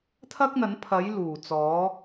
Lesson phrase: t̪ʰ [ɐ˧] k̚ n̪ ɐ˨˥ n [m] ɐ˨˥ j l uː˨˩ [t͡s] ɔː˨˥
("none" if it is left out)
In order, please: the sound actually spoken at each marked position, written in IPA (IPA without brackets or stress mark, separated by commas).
ɐ˥, pʰ, t͡s